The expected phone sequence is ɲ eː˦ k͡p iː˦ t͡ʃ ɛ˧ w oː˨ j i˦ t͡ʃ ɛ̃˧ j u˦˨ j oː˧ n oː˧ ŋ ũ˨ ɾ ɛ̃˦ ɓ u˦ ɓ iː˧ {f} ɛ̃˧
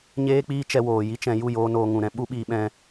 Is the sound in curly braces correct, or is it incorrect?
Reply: incorrect